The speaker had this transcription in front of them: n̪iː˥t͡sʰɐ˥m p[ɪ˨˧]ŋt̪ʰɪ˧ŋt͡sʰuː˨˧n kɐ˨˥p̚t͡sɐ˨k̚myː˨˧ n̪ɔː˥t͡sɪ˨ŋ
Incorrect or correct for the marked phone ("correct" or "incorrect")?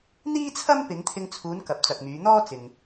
correct